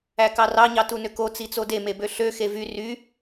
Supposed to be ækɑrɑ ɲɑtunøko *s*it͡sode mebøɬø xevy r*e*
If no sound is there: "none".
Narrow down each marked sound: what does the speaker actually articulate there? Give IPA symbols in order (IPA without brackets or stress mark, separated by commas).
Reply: t͡s, y